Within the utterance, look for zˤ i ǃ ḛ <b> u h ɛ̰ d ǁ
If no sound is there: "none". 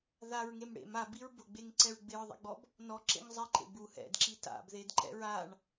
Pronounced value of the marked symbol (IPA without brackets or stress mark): b